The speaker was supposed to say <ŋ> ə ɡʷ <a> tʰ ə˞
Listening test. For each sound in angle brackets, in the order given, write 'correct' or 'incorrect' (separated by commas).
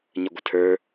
incorrect, incorrect